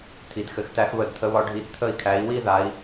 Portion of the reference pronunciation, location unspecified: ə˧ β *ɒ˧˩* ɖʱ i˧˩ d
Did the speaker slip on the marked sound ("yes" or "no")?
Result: yes